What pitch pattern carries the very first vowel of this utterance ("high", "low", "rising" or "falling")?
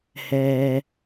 low